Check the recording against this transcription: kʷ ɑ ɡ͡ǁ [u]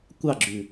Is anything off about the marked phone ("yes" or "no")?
yes